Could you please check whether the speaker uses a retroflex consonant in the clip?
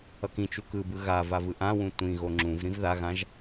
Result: no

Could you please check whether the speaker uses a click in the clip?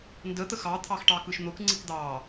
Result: yes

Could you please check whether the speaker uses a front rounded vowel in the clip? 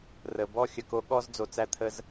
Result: no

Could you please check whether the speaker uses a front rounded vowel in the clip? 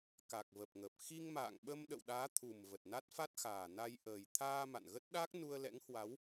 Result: no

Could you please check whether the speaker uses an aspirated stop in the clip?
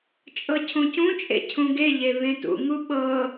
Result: yes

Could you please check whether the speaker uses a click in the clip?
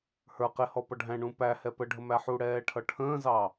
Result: no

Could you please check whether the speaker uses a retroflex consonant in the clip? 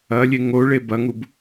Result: yes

